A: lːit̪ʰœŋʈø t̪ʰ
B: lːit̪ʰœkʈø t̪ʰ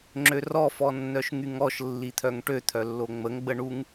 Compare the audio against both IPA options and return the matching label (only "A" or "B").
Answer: A